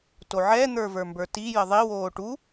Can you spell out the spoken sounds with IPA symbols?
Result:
toʕɛː n̪ə˞və˞mbə˞ti jəðˤi woːʈu

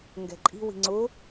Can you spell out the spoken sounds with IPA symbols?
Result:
ŋɡɛ̤ǃʼi̤ wi̤ŋ͡ǀʊ

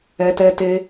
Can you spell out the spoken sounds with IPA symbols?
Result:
ɛ˧tɛ˦te˦

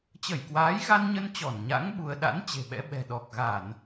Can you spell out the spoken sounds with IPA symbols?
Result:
t͡ɕə˧˩jkwaː˨˦jɣa˧n ɲə˧n t͡ɕɔ˧˩nɲa̰˧˥ŋ ɓu˧ə̯ ɗa̰˧˥n t͡ɕe̤˨˩ɓɛ̰˧˥ɓɛ̤˨˩ ɗɔ˨˩k̚ɣa˧˩˨n

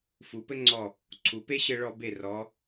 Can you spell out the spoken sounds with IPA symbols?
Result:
fu˩˧pɘ˥ŋ͡ǀɔ˧˩ | ǀʰu˩˧pe˥ɕɘ˧ ɭɔ˧be˧˩rɔ˩˧

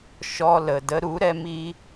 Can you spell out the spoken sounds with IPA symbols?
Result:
ʃɔ˧lə˨ də˧ɾu˨˦ɾɛ˧ mi˦

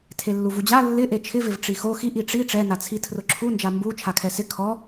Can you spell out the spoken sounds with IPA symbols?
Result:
tʰelːuvud͡ʑa lːɪʔe t͡ʃʰɪvɪv ʈ͡ʂixo xiʔ iʈ͡ʂi ʈ͡ʂɛnat͡sʰi tʰrʊǁʰund͡ʒa mbu t͡ʃʰakʰɛsɪ kʰɔ

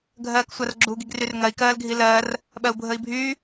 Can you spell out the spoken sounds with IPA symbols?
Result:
ɡʱɜːksʷarɡ͡ǁu ɡiɡryrŋɜi̯ kɜːlɡʱilɜːr | ɓɜu̯bʱəi̯bʱyː

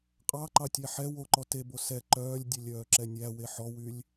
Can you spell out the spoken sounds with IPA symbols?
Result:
qʼɑǃɑtʲæ ħɛ woǃɔ tebo sɛ ǃœːlʲdʲelʲœːǁɛ nʲæwe ħɔwylʲ

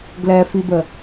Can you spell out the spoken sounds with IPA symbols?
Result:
ɡlɛfibə

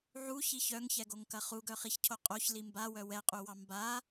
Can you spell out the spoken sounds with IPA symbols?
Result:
ʕuçi çœŋçɛɡoŋkɐ χuɡœχiçcʰo qʼoçli mbawœ wɛqʼuwɑ mba

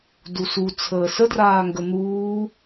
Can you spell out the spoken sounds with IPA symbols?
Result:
dusu t͡sʰəːsədraː ŋɡən̪uː

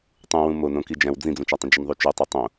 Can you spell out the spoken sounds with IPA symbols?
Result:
tˤũwũ monõ kid͡ʒæ̃w d͡zĩd͡zũt͡ʃætˤə̃ d͡ʒənðˤut͡ʃøtˤø tˤõ

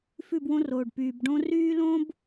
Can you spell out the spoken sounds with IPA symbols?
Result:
fʉ˦˨bwõ˦roː˨ɖ pyː˨bɖõ˦ ryː˦lõ˦b

